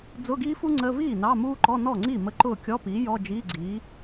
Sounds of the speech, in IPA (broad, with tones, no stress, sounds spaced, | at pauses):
d͡z ʊ˧˥˧ ɡ iː˥ f u˥ ŋ͡ǀ ə˧˥˧ v iː˥˩ n ɑ˧˥˧ m uː˥ ǃ ɔ˧˥˧ n ɔ˥˩ ŋ͡ǀ i˥˩ m ə˧˥˧ ǃ ʊː˥˩ kʲ ɔ˧˥˧ p iː˩˥ j ɔ˧˥˧ d͡ʒ iː˧˥˧ ɡ͡ǀ iː˩˥